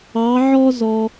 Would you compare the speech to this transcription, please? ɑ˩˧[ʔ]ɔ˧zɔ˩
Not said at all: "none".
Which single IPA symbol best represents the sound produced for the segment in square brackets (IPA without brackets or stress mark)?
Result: ʕ